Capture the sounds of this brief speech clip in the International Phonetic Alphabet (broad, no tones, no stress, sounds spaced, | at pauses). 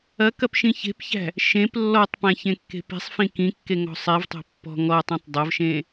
ɐ k ɐ p ʃ ĩ ç e̤ p ç æ̤ | ʃ ẽ p lː ɔ tˤ p æ̃ ç ẽ kː e̤ p i̤ sˤ f ĩ k ĩ kː e ŋ ɔ̤ sˤ i v tˤ e̤ pː ɔ̤ ŋ ɔ tˤ ẽ tˤ dˤ ɐ v ʃ ẽ